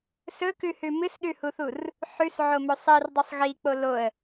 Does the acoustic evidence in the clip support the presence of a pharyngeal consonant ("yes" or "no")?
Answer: yes